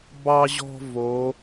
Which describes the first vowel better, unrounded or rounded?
unrounded